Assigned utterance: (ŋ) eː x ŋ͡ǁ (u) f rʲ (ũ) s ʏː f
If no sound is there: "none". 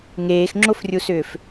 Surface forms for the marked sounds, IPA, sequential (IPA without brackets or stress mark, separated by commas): ŋ, o, u